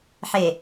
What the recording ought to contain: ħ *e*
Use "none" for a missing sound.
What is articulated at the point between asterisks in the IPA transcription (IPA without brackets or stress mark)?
e